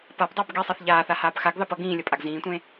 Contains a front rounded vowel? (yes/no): no